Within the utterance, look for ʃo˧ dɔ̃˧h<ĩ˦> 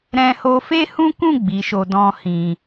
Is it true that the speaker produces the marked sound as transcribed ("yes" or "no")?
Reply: no